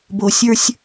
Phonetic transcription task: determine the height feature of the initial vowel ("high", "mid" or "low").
mid